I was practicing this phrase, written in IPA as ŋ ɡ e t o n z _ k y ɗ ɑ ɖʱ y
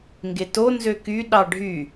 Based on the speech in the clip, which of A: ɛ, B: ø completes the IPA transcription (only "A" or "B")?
B